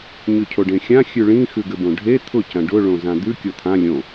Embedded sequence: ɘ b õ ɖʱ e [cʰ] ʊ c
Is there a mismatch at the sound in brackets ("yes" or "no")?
yes